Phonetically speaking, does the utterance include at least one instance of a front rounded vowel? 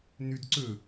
no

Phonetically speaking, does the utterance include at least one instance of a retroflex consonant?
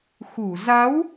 no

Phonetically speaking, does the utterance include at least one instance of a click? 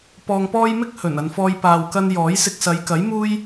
no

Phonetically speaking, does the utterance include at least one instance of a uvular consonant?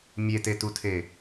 no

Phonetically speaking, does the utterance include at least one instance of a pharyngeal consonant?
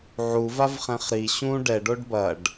yes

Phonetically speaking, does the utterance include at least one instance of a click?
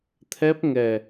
no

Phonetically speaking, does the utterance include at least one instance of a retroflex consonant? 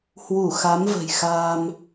no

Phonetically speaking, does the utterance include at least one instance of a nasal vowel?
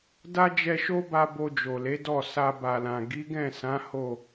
yes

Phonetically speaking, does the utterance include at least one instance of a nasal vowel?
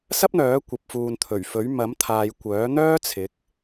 no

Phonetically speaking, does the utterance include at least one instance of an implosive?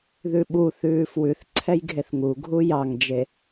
yes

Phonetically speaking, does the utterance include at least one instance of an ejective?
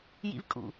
yes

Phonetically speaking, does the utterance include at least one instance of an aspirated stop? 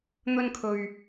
yes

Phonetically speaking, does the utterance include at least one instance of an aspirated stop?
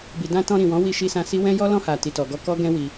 no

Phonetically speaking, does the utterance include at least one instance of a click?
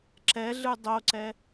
yes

